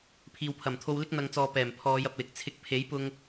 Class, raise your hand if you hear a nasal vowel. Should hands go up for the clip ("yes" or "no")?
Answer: no